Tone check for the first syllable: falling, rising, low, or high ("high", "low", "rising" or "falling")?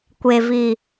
low